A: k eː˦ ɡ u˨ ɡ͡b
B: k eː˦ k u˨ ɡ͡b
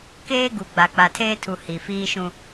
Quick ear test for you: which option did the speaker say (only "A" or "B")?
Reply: A